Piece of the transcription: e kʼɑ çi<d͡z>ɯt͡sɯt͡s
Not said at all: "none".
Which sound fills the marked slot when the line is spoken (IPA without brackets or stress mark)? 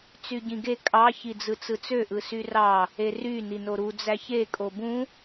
d͡z